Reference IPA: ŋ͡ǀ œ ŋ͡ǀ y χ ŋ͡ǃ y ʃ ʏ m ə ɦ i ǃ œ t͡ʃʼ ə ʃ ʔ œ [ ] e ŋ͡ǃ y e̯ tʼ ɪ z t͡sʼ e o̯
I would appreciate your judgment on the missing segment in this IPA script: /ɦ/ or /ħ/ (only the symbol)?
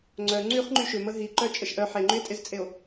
ħ